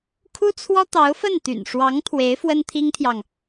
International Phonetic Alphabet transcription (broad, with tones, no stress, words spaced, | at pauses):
kʰu˥t͡sʰwɔ˥ t̪ɑ˧˥ʊ̯fə˥˩nt̪y̰˨˩n ʂwɑ˧˥ŋ t̪ʰwe˧˥ɪ̯ fwə˥nt̪ʰi˥ŋt̪ʰjɑ˨ŋ